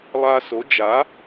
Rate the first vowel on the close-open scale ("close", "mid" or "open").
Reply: open